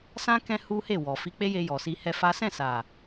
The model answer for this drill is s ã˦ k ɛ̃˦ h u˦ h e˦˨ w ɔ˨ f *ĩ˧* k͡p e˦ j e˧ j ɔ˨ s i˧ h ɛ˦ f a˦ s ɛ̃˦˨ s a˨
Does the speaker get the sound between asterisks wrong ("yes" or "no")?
yes